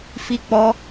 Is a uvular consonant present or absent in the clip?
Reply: absent